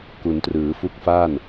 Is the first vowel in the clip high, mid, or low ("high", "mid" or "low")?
high